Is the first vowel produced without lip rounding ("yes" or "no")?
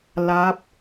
yes